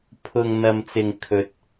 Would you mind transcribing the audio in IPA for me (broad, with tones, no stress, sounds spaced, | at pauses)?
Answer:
pʰ ʊ˨ ŋ n̪ ɐ˨ m t͡s ɪ˨ ŋ kʰ ɵ˧ t̚